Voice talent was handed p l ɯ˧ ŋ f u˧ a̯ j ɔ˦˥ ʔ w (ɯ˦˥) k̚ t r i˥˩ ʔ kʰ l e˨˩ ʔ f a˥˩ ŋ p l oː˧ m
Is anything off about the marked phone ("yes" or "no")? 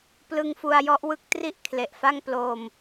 no